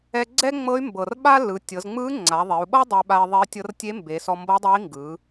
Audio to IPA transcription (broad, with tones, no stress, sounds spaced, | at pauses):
ɛ˧ ɡ͡ǀ ɛ˥ ŋ͡m ɤ˧˥ y̯ m b ɤ˩ r ɓ a˥ l ɯ˩˧ tʲ ɤ˩˧ z ŋ͡m ɯ˧˥ ŋ͡ǀ a˩˧ ðˤ e˩˧ u̯ ɓ ɤ˥ dˤ e˧ ɓ a˧ i̯ ðˤ e˧˥ i̯ tʲ ɤ˧˥ r tʲ e˧˥ m b e˩˧ s ɔ˧ m b ɤ˧˥ dˤ ɛ˧˥ i̯ ŋ ɡ ɯ˩˧